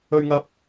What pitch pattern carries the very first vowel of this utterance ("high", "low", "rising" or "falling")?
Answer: high